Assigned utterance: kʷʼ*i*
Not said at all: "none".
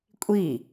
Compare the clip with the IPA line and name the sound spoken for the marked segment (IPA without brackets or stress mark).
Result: i